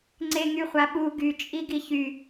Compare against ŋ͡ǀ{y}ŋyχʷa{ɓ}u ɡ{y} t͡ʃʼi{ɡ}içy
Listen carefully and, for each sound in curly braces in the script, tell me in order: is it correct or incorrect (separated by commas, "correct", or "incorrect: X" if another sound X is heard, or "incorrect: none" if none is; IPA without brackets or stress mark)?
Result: incorrect: e, correct, correct, correct